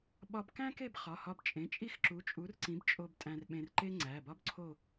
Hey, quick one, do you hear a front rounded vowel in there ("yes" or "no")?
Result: no